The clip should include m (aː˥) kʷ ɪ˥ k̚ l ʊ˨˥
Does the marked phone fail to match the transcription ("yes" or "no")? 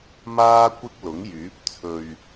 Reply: yes